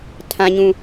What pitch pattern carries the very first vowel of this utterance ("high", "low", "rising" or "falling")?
low